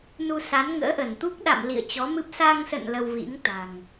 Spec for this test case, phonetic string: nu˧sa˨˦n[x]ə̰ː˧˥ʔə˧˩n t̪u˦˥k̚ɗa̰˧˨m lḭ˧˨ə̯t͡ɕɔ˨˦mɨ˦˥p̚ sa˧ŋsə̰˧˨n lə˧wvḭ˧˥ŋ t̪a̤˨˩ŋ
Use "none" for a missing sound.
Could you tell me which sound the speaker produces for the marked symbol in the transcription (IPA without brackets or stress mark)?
ŋ